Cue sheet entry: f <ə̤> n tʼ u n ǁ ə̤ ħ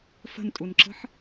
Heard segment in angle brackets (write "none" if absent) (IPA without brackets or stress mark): ə̤